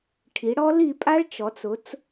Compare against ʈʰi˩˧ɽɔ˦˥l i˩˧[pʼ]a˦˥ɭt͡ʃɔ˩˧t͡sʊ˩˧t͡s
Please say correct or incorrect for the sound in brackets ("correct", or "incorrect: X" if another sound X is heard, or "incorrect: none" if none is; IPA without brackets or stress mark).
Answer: correct